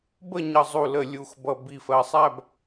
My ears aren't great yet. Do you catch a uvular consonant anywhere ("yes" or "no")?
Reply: no